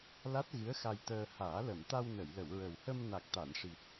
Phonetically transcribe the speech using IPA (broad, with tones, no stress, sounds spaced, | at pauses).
l a˦˥ t̚ ɣ ɨ˧˥ ə̯ x a˧ j t̪ əː˧ h aː˨˩˦ l ə˨˩˨ m t̪ a˧ w n ə˨˩˨ j l ə˨˩˨ w ɹ ə˨˩ w h ə˧ m n a˨˩ k̚ t̪ a˨˩˨ n ʂ i˨˩ t̚